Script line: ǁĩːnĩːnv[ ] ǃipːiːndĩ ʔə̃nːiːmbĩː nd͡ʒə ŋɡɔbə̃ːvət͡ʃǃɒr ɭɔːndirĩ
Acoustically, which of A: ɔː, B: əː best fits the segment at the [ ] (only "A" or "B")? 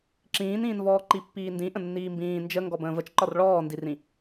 A